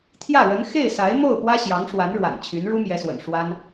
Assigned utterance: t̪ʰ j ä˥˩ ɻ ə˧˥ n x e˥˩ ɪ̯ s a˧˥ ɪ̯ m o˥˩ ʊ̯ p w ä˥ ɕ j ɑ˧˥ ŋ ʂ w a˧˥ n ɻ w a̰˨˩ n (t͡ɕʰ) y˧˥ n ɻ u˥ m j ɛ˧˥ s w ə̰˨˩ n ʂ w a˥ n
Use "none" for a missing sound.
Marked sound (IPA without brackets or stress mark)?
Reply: t͡ɕʰ